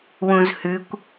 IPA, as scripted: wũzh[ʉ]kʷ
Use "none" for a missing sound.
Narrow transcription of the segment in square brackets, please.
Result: ʉ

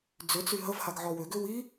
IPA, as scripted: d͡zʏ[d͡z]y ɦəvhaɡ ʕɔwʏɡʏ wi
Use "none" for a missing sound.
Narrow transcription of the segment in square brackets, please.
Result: t͡s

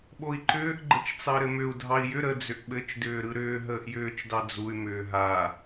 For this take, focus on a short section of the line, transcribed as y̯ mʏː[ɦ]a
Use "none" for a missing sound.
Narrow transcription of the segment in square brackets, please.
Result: ɦ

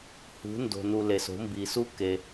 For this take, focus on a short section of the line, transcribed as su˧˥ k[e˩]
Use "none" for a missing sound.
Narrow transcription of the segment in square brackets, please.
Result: e˩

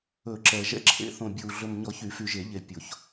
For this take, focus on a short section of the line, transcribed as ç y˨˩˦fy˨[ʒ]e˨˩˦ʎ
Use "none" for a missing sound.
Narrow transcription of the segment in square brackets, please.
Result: ʒ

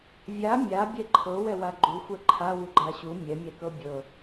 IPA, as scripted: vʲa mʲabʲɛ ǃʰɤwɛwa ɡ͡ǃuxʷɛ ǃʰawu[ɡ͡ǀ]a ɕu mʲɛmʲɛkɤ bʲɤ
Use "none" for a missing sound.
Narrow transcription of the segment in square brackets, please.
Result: ɡ͡ǃ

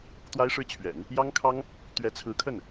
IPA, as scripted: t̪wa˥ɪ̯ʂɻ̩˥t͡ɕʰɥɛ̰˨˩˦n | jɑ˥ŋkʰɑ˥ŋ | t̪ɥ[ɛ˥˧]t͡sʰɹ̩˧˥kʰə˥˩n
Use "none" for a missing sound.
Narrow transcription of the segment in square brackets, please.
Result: ɛ˧˥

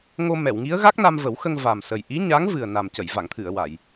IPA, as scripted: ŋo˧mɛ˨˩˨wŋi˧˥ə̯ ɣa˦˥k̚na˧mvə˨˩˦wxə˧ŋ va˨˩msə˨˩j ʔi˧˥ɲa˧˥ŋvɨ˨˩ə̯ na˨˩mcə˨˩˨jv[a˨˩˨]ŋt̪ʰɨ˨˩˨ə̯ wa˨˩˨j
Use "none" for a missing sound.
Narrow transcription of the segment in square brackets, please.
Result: a˨˩˨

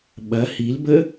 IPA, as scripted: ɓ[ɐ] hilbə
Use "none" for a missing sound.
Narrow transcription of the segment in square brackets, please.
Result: ɐ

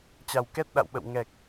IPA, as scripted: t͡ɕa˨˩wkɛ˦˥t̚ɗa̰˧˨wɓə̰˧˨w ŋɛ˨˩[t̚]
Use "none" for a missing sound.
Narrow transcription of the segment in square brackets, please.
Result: k̚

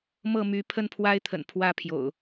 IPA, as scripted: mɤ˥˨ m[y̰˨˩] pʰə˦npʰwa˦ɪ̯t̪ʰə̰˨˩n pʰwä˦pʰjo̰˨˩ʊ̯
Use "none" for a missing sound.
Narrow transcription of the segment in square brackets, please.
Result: y˨˦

